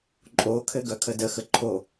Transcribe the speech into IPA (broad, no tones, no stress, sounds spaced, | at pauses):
ǃʼ o kʰ ɘ ɡ œ kʰ ə d ə x ə ǃʰ o